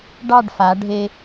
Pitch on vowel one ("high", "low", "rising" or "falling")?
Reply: falling